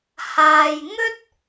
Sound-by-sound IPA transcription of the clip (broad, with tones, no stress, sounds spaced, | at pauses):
h aː˨ j ŋ ɵ˥ t̚